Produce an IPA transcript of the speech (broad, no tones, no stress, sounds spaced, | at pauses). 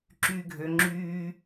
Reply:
ǁ yː ɡʱ ø ŋ͡ǁ yː